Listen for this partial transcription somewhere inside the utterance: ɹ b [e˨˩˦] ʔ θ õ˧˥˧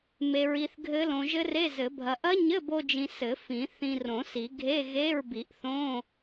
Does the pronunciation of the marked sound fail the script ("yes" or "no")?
yes